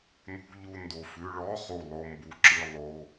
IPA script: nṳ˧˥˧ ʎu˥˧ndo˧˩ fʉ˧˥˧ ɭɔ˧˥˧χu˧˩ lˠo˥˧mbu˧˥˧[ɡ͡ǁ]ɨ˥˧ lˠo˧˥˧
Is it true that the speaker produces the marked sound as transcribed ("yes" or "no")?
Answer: no